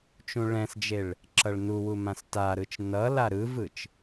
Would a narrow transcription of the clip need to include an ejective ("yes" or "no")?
no